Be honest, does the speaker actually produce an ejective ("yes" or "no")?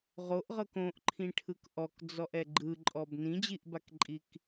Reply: yes